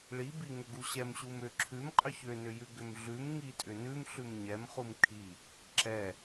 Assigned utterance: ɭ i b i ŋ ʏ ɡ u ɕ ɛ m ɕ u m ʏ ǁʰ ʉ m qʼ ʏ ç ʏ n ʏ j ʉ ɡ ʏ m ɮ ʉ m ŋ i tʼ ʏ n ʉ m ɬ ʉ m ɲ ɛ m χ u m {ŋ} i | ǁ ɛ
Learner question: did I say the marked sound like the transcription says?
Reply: no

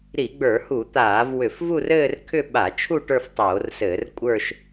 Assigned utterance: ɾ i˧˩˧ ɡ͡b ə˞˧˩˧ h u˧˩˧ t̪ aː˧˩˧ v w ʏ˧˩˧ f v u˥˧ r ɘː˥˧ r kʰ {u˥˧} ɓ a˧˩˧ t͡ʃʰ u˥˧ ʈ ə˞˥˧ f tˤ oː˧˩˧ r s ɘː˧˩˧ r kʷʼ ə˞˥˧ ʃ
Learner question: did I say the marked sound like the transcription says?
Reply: no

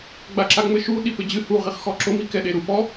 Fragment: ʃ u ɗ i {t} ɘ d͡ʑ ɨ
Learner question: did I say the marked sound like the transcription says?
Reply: no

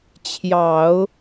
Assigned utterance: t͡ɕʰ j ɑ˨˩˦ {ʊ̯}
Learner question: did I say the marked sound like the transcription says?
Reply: yes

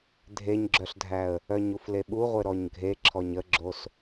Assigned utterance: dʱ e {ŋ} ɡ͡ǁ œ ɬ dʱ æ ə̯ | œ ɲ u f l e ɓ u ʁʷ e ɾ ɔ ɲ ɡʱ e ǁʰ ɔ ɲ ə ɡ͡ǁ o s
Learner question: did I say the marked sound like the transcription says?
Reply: no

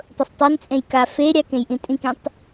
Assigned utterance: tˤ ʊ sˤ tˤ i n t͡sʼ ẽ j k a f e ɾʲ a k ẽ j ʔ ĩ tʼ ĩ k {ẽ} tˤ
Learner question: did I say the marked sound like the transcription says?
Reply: no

